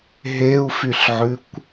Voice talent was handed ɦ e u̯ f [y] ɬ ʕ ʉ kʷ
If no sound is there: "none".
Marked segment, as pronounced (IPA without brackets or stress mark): y